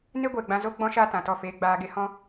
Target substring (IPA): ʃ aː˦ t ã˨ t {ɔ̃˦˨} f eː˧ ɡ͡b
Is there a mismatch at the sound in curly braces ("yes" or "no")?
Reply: yes